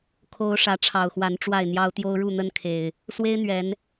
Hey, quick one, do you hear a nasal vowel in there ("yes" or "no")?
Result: no